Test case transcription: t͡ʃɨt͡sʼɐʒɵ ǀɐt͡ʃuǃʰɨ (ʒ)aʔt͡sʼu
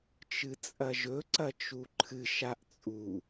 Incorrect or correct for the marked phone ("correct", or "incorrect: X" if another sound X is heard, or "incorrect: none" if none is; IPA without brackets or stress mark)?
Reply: incorrect: ʃ